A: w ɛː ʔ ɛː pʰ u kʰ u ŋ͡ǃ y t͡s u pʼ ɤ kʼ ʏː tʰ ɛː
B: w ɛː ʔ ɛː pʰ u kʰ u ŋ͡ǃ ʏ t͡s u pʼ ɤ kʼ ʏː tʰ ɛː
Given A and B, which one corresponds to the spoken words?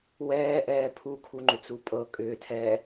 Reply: B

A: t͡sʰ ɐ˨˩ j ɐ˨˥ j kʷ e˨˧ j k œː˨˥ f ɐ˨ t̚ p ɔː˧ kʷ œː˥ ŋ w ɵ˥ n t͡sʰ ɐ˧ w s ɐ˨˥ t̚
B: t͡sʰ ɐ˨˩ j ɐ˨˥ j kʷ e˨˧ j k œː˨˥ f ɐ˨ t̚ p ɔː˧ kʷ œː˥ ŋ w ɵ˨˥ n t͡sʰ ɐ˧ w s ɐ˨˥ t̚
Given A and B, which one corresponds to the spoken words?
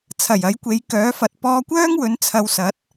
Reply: B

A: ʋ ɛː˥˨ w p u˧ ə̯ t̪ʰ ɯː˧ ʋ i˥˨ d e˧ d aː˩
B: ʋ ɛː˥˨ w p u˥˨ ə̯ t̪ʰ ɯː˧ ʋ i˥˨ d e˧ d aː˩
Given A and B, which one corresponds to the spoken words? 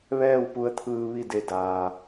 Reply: A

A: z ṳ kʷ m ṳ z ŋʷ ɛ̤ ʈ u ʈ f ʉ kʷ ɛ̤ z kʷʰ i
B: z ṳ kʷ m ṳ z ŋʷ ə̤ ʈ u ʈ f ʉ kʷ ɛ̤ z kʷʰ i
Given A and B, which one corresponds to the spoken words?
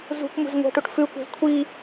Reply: A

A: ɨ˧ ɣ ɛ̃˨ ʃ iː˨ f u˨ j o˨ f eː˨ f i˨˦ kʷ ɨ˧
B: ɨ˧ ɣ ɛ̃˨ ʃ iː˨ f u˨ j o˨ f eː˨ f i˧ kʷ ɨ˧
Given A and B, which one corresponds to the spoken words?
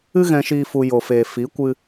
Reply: A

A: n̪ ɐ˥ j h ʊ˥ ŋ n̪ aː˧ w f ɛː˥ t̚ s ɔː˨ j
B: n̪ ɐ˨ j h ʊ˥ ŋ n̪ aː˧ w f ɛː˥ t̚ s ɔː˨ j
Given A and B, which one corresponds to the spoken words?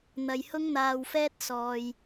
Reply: B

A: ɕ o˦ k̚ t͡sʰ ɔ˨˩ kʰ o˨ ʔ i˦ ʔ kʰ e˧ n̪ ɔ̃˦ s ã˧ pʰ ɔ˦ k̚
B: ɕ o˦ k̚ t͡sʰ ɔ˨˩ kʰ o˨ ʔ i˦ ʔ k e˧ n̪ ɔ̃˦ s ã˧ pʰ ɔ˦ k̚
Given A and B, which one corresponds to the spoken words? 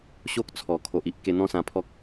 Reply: B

